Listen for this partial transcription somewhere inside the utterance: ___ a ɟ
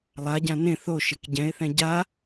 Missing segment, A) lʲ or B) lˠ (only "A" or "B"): B